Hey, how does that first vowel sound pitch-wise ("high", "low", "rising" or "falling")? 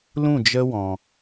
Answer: falling